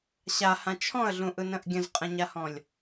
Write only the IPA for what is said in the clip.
ɕ a h ã t͡ʃʰ ɔ̃ ə̯ ɮ ũ ʔ ɯ n ə̃ ʔ ɡʲ ə̃ z qʼ ə̃ ɲ a h ɔ̃ lʲ

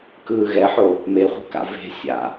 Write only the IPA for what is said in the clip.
k ɯː ɣ ɛ ħ o | m e χʷ e̤ k a̰ v e̤ sʲ a̰

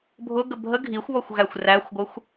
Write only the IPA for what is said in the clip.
bʱ ʊ ɡ ə bʱ ə ɡʱ i xʷ β ɔ xʷ ɣ æ xʷ r æ xʷ ɡʷ ə xʷ

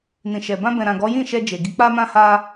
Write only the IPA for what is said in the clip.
n ĩ˨ ʃ ɛ˨ b ã˧ b ɛ̃˨ ɾ ã˨ ɡ ɔ˨˦ j ĩ˦˨ ʃ ɛ˧ d͡ʒ e˨ ɡ i˨˦ k͡p a˦ m ã˦ h a˦

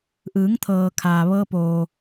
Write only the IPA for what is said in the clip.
ʔ ɯː˩˧ ŋ t̪ʰ ɤː˩ kʰ aː˩ ʋ ɤː˧ p oː˩

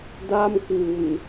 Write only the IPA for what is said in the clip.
d a˥˩ m k w u˨˩ n

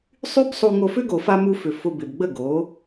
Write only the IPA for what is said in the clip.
sˤ y˦ b sˤ u˧ ŋ o˧ f ʏ˦ ɡ o˨ f a˧ m u˧ f ʏ˨ f ʊ˧ b ɪ˨ b ɡ͡b ə˦˨ ɡ o˨˦

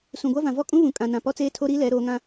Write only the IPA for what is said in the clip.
s ũ˨ ɡʷ a˦ v ã˨ v ɔ˦ kʼ ũ˦ β ũ˨ kʼ ã˨ n ã˨ p ɔ˦ t͡s eː˦ tʰ o˦ ɾ iː˦ l ɛ˨˦ ɾ oː˨˦ ŋ ã˦

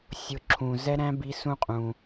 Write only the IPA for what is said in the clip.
sʲ ʊ˨˥ ǁʰ ũ˩ z ɛ˦˥ ɾ æ̃˦˥ b i˨˥ s ũ˧ qʼ ũ˩

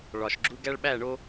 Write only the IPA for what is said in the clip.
ɭ ɒ˨ ʃ ɡ͡ǁ u˦ ɡ æ˦ ɭ ɓ æ˦˨ ɳ o˦

